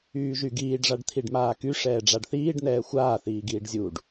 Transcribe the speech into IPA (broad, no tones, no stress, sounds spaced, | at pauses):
yː ʒ y ɡ iː ɖ ʐ a ɖ t̪ʰ i ɖ m aː k y ʂ ɛː ɖ͡ʐ a ɖ θ iː ɖ n̪ ɛː xʷ aː θ iː ɡ iː ɖ zʲ u ɖ